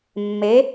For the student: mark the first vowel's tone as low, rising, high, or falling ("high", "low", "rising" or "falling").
rising